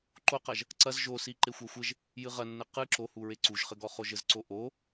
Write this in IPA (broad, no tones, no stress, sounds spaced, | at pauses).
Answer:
ǃ o q ɐ ʒ | ǀ ɐ z ʒ o s i ǃ e xʷ a xʷ ɘ ʒ | j ɨ ʁ ɐ nː ɘ q ɨ ǁ o h u ɹ e ǀ u ʒ χ ɘ ɡ ɔ χ o ʒ ɘ z ǀ o ʔ o